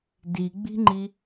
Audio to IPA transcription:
diɡ͡bi̤ŋ͡ǃi

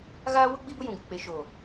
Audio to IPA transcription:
ɣaː˦wʊ˦ ɡ͡bi˦bʊ˦jũ˨ ɡɪ˨ k͡pe˨ʃoː˨

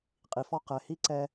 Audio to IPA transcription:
qʼi˨fɔ˧ qɛ˨hi˧ ǀɛ˧

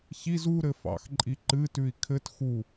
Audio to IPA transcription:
çiz u ɾɘfɑ̰xǃʼi ǃɨtʉi̯ kʰɘt xu

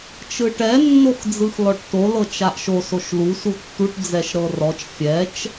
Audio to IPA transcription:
t͡ʃɯʈɛ nːoxd͡zɯxlɔʈto lɤt͡ʃaʔʃo soʃlu sutːuʈ d͡zɛʃɾɤrɔt͡ʃ fʲɛt͡ʃ

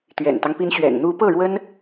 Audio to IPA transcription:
t̪ɥɛ̰˨˩nt̪ɑ˦ŋpi˧˥n ɕɥɛ̰˨˩nn̪u˧˥pɤ˥˩ ɻwə˥n

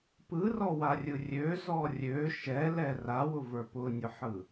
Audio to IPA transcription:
pɯrɔwarʲɯ rʲøzɔ rʲø ʃɛlɛ rawʊvə˞ pʊnʲʊħɯ

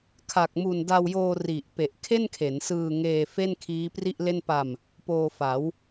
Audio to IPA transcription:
kʰa˨˩k̚mu˨˩n da˧wjoː˧ri˨˩ʔ pe˨˩ʔ kʰe˥˩nkʰe˩˦nsɯː˧ŋeː˧ fe˥˩n kʰiː˦˥pri˥˩ʔle˥˩n pa˧m | poː˧fa˩˦w

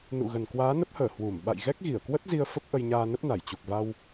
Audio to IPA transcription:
nṵ˧˨ɣə˨˩n kwaː˨˦nə˦˥p̚həː˧˩ hwu˧˩m ɓa̰˧˨j ɣɛ˦˥k̚ɣi˧˩ə̯kwə˦˥t̚ zi˧ə̯ fə˦˥p̚ʔə˧jɲaː˧ nə˦˥p̚na˧˩jt͡ɕu˨˩k̚va˧w

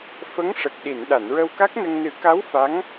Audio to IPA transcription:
fə˧˥ŋʂə˨˩k̚ɗi˨˩˨n ɗa˨˩˨nɹə˧wka˦˥k̚nə˧ŋ nɨ˨˩˦ka˧˥w fa˧˥ŋ

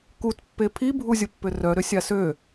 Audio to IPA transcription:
kutpːe pʰibʱuzʲʊpːʏ rœɾʏ sʲasø

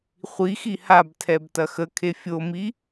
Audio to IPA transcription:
χʷixi habtʰɛb tɐxəkʰe fʲomi

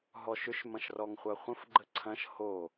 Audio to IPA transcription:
ɦɔʃʏʃ mɐ̃ʃrɔŋχʷaχʷə̃f ɡ͡ǃəǀʰɐ̃ʃ ho

